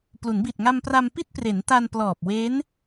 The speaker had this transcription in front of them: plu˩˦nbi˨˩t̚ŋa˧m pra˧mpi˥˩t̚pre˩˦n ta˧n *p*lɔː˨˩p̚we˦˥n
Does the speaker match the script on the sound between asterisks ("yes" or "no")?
yes